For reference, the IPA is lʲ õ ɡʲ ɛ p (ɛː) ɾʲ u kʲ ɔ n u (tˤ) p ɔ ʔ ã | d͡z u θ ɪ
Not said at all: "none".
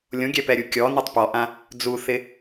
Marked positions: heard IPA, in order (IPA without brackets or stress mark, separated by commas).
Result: ɛ, tˤ